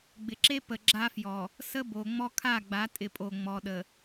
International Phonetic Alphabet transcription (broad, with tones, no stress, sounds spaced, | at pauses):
ɡ͡b ɪ˨ ǁ e˦ p ə˨ ɡ͡ǁ a˦ f j ɔ˨ | s ə˦ b o˨ ŋ͡m ɔ˦ kʰ a˦˨ ɡ͡b a˨˦ tʼ ɪ˨ pʼ o˨ ŋ͡m ɔ˨ ɗ ə˨